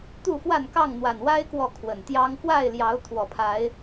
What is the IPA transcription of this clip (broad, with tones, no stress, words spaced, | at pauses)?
t̪u˥˨fwa˥˨nkɑ˥˨ŋ n̪wa˨˩nwa˦ɪ̯ kwɔ˥˨kʰwə˨˩nt̪jɑ˦ŋ fwa˥˨ɪ̯ljɑ˨˦ʊ̯ t̪ʰwɔ˨˩pʰa˨˦ɪ̯